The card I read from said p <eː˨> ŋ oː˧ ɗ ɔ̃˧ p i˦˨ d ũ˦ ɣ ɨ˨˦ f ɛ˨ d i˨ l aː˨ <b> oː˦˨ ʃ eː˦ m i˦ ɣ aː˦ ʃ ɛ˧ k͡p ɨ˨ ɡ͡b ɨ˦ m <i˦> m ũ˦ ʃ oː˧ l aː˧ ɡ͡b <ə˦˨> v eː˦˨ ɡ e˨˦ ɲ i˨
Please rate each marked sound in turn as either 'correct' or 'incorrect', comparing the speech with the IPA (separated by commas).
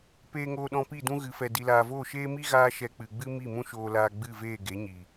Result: incorrect, incorrect, incorrect, incorrect